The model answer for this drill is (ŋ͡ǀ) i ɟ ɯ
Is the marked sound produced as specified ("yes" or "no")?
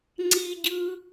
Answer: yes